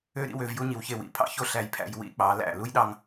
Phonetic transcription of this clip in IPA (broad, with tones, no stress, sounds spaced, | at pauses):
ø˥˧ ɾ ḭ˥˧ w ø˥˧ v j u˥ ɲ i˩˧ w ç e˧˩ w ḭ˧˩ pʰ ɑ̰˥ ç o˥˧ ɬ æ˧ j pʰ æ̰˧ j w ḭ˥˧ k͡p ɑ˩˧ l æ̰˧˩ l u˥ j ɗ ɑ˧ ŋ